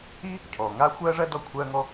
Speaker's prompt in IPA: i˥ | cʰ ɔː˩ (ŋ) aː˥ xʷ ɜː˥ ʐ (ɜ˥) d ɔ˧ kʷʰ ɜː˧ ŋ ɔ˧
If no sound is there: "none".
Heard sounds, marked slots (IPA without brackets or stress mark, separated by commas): ŋ, ɜ˥